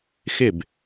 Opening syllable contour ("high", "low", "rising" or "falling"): falling